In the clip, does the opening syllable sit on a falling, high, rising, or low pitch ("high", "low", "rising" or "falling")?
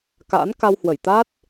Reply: rising